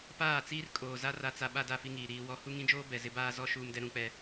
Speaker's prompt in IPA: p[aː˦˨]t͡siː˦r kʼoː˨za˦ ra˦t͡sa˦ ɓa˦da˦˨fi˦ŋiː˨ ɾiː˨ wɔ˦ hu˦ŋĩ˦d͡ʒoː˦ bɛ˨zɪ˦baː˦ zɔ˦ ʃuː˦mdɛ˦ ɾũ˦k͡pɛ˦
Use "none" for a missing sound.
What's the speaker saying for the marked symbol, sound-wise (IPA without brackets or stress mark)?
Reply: aː˦˨